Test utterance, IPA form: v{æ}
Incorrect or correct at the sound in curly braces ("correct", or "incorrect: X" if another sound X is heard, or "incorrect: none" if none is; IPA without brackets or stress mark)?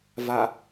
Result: incorrect: a